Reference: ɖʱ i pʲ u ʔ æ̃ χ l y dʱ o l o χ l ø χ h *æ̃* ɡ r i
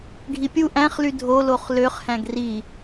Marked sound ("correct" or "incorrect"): correct